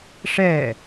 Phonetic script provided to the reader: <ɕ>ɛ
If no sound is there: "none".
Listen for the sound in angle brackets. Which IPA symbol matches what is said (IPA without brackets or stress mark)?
ʂ